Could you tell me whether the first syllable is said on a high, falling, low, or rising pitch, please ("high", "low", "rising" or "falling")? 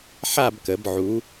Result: falling